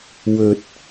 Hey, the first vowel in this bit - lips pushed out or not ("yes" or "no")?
yes